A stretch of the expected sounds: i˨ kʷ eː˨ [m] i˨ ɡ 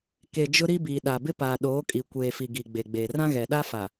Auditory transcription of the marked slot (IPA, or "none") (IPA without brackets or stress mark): f